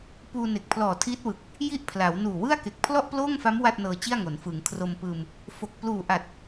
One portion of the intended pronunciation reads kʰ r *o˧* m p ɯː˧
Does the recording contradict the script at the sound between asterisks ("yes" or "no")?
no